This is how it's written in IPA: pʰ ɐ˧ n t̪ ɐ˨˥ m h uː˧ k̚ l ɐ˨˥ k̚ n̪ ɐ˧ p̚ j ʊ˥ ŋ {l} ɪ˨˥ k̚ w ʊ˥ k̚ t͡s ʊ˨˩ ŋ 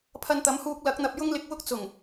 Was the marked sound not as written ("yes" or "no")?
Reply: no